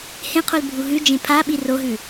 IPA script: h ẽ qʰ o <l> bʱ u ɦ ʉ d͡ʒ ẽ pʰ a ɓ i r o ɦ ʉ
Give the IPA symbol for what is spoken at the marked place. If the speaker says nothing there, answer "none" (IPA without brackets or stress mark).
l